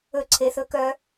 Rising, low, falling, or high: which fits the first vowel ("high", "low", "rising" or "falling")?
high